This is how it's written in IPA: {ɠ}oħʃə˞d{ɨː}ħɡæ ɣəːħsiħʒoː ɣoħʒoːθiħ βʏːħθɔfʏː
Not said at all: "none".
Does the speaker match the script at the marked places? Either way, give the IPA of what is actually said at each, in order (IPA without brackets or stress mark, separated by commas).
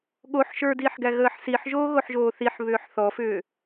ɠ, iː